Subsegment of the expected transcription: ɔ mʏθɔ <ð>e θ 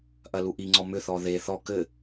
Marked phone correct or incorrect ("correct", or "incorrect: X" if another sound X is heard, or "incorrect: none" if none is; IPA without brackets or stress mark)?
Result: correct